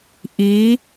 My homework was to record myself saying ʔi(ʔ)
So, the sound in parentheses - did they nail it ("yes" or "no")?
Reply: no